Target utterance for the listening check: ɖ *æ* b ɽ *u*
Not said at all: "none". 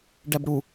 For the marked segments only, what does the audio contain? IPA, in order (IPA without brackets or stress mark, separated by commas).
æ, u